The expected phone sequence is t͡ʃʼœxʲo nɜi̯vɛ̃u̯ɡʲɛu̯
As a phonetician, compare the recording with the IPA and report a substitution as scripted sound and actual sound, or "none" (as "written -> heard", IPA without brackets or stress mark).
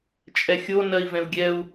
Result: œ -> ɛ